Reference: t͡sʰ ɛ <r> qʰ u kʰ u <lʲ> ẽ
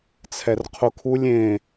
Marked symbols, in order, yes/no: yes, yes

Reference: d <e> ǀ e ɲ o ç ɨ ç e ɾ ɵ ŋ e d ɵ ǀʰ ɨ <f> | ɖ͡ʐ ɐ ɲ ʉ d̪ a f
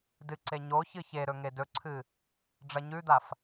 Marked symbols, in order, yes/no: no, no

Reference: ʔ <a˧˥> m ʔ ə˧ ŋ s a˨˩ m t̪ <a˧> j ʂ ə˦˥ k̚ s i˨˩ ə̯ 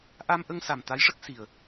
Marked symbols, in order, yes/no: no, no

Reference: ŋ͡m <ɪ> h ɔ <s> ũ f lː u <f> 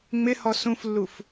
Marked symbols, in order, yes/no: yes, yes, yes

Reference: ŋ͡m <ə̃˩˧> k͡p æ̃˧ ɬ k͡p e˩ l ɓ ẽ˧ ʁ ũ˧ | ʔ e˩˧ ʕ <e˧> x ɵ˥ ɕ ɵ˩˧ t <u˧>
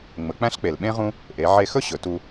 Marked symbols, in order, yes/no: no, yes, yes

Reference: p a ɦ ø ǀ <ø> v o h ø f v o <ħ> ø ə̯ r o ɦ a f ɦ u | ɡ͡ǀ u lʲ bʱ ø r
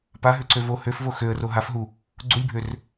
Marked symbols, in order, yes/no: yes, no

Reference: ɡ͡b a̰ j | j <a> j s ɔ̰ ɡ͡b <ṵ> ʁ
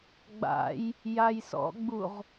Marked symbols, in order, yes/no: yes, no

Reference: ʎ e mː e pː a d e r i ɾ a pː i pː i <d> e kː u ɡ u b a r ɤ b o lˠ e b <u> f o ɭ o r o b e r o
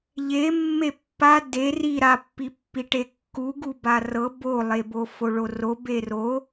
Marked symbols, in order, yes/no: no, no

